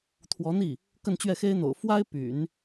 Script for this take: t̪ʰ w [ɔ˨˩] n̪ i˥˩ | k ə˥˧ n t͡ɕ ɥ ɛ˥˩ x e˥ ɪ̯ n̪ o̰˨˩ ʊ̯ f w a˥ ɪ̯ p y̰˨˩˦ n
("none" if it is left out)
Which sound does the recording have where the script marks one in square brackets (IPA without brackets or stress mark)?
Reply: ɔ˧˥